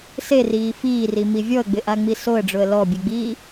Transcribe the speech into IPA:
seriː fiːrimi vʲɔə̯ɡ͡bɪʔaŋ͡mi soə̯ɖ͡ʐʊə̯ lɔbʲeɡ͡biː

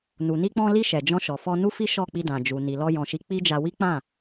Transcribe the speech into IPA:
nu˨ni˧k͡pɔ̃˧li˧ ʃɛ˨d͡ʒɔ̃˧ʃɔ˨fɔ˧ nu˦fi˦ ʃɔ˦˨k͡pi˧dã˨ d͡ʒu˨ni˨ lɔ˧ jɔ̃˨ʃi˨˦ k͡pi˦d͡ʒa˧ wi˦k͡pã˦˨

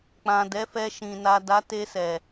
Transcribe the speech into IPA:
k͡pã˨ dɛ˨˦fɛ˧ʃĩ˨ na˨ da˨˦te˧sɛ˨

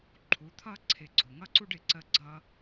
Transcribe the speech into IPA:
ǃʰu˨˦t̪ʰʌ˦ ǀʰɪ˧ ɡ͡ǀʊ˨ ŋʌ˦ǀu˦ɖɪ˨ ǀə˦ɡ͡ǀʌ˦

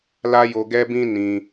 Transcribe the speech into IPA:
la˦jo˧ ɡɛ˦bĩ˦ nĩ˧

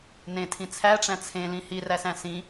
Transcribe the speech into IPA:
nẽtʰĩ t͡sʰæʈ͡ʂæ̃ t͡sʰẽlĩ hiræsæ̃ sĩ

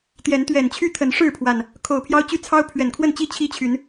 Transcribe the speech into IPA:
t̪jɛ˨˦n t̪ɥɛ˨˩nt͡ɕʰy˦ t̪ʰə˨˦nʂɻ̩˥˨pʰwa˨˩n | kʰo˨˩ʊ̯pʰjɑ˦ʊ̯ t͡ɕy˦t͡sʰɑ˦ʊ̯ pʰɥɛ˨˩nkʰwə˥˨nt͡ɕi˥˨ t͡ɕʰi˦t͡ɕʰy˨˦n

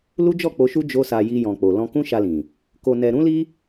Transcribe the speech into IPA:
lu˦d͡ʒɔ˦˨k͡po˧ʃu˦ d͡ʒo˦sa˧ ji˧jɔ̃˨k͡po˨ lɔ̃˧kũ˦ʃa˧lĩ˨ | ko˧nɛ˧ ɾũ˦li˦

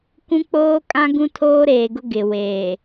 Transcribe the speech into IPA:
kũ˦k͡poː˦kʼã˦ ɡũ˦tʰoː˦ɾeː˨ɡʊ˦ ɡɪ˨weː˨

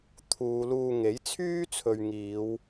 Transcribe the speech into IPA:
t̪ʰuː˨˧luː˧ ŋe˨˥jt͡sʰyː˥t͡sʰɵ˨ɥ ŋiː˨˧w

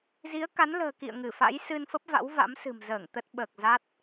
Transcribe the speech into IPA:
zi˨˦ə̯ka˨˦nlə̤ː˨˩ kḭ˧˨ə̯ ŋɨ˧˩ fa̰˧˥jsɨ˧nfə˦˥p̚va̰˧˥w va̰˧˥msɨ̤˨˩mzəː˧˩ŋ t̪ə˦˥t̚ɓəː˨˩k̚ za˦˥t̚

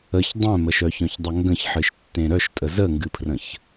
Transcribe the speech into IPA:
əç dˤœ̃məʃ œçœ̃çdˤəŋɡə̃ç ħɨʃtːẽɾœʃtʼə zəŋɡɨpʰrə̃ç

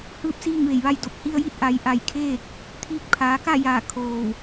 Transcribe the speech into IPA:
hɯː˧p̚ siː˥˨ŋʋe˧˩jʋa˥˨jdo˧p̚ hi˧ə̯ji˧˥t̚ ʔa˩˧jʔa˧˩jkʰeː˥˨k̚ | t̪ʰiː˧k̚pʰaː˩˧ka˥˨jaː˧˩ kʰoː˧˩w

